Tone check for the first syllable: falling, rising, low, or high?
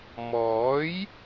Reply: rising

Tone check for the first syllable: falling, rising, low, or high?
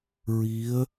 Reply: rising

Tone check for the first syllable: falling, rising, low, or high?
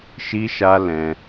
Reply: high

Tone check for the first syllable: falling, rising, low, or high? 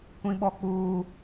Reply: high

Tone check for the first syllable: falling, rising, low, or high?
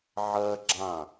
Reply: high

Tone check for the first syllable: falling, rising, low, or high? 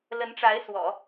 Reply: rising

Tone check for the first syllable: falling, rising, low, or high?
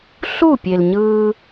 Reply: falling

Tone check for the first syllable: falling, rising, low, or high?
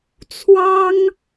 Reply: high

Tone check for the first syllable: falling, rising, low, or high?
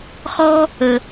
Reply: high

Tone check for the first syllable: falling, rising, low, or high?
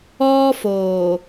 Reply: high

